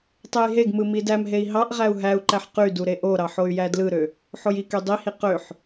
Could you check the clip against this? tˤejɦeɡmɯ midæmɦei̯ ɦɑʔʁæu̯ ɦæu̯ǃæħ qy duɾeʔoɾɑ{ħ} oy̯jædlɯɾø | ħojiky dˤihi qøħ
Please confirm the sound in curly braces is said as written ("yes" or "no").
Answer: yes